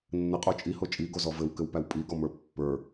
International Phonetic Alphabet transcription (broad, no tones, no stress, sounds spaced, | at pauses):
nː ɘ qʼ o t͡ʃʼ i h o t͡ʃʼ i ɡ o z ɔ v ɘ w k ɘ w p æ w pʼ i ɡ ɔ m ə˞ pː ə˞